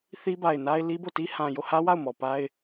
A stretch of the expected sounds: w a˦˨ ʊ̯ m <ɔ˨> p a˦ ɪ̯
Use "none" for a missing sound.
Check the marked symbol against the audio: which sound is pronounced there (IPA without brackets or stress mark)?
ɔ˨